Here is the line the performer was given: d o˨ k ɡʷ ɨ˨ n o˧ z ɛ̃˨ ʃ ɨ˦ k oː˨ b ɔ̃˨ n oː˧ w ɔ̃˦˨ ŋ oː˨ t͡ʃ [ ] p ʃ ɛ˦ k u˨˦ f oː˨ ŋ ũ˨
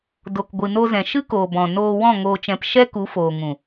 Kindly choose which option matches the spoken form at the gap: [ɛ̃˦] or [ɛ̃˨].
ɛ̃˨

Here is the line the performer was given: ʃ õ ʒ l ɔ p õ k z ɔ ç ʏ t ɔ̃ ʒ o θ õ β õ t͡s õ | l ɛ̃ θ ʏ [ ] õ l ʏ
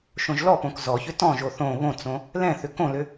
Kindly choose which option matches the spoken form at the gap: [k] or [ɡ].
k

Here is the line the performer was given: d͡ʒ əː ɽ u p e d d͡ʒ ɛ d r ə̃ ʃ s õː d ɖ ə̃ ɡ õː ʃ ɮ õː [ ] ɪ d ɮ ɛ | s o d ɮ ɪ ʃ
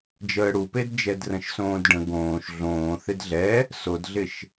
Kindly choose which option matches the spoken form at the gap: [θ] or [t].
θ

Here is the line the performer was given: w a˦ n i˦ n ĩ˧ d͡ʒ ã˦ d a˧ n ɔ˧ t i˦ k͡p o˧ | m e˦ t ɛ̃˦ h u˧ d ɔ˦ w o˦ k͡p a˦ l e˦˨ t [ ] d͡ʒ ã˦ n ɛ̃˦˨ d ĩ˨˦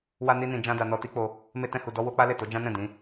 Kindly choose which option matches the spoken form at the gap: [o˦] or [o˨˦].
o˨˦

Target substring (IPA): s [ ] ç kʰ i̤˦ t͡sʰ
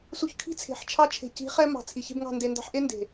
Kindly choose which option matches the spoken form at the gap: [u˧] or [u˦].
u˧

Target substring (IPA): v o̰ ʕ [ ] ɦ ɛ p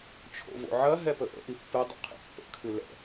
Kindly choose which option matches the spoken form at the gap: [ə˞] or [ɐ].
ɐ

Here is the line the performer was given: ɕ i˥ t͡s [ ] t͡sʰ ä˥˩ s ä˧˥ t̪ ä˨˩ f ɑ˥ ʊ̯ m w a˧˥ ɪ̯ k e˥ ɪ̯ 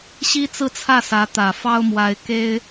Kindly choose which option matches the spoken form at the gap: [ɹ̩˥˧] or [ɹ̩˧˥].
ɹ̩˥˧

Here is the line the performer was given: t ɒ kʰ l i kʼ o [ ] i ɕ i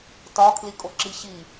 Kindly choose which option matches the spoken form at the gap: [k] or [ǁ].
ǁ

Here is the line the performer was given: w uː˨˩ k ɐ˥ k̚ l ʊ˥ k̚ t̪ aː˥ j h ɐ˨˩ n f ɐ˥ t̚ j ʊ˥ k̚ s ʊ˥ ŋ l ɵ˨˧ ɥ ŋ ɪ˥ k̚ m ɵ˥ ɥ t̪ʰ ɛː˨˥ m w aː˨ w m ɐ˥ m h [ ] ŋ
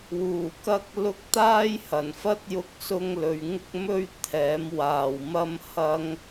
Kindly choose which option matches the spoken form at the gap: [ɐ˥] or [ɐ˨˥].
ɐ˥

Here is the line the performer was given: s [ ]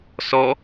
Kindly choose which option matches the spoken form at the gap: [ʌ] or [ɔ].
ɔ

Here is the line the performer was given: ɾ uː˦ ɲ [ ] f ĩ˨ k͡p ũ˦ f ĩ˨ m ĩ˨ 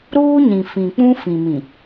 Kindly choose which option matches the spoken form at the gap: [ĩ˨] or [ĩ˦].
ĩ˨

